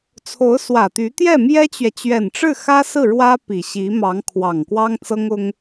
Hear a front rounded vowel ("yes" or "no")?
yes